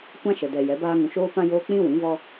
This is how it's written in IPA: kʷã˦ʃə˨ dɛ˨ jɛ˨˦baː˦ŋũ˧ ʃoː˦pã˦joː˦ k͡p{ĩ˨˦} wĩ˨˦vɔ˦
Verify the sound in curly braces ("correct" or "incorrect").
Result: incorrect